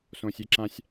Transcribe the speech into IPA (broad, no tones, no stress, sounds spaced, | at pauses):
s õ sʲ e ǁ ã sʲ